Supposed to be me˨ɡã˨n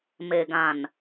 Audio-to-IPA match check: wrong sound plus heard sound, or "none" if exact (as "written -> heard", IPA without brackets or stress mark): none